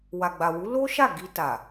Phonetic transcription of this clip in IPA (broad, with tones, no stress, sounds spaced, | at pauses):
w a˨ ɡ͡b a˨ w u˨˦ l o˦ ʃ a˦˨ ɡ i˧ t a˨